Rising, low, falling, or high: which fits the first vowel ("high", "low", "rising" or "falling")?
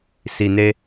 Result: low